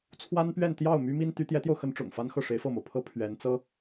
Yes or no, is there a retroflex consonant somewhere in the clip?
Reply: yes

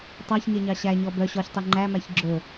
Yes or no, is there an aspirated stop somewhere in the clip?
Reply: no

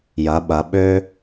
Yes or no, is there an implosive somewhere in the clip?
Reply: yes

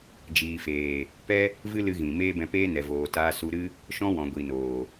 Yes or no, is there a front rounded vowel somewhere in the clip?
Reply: no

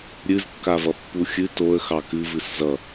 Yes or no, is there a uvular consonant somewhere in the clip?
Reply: no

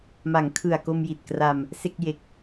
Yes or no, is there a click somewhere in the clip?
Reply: no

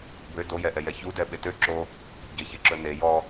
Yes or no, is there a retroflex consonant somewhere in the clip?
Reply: no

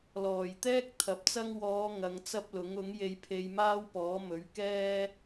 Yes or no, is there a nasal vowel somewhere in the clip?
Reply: no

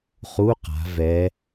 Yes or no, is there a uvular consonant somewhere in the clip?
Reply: yes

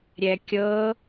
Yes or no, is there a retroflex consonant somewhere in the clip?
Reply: no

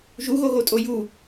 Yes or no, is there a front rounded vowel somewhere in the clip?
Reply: no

